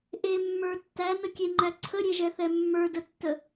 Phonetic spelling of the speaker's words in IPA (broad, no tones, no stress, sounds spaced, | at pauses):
ʔ e mː ə˞ tː æ n ə kʲ e ŋ͡ǃ æ ǀʰ ə ɾʲ e ʒ ɛ θ ɛ mː ə˞ d ə tː ə